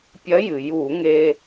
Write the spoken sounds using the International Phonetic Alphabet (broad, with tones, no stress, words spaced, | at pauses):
pʲɐ˧˥jɨ˩ju˧˩˧ŋe˧